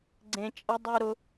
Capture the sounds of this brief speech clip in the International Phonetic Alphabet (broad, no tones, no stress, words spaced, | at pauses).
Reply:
ɡ͡ǀẽ t͡ʃʼɐ dˤu ɾʊ